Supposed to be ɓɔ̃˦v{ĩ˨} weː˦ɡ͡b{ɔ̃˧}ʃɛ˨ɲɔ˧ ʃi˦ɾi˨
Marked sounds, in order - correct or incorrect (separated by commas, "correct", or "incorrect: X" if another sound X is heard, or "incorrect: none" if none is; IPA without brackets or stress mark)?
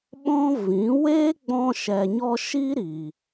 incorrect: ĩ˨˦, correct